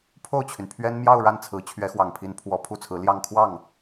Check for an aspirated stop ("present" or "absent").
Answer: present